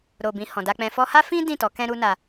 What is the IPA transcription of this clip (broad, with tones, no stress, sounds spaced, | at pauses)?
ɾ o˨ b ĩ˨ h ɔ̃˨ d a˧ k͡p ɛ̃˧ f ɔ˧ h a˦ f ĩ˦ d ĩ˦˨ t ɔ˨˦ k ɛ̃˦ ɾ u˦ n a˧